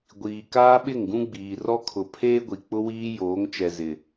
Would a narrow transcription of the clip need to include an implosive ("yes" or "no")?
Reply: yes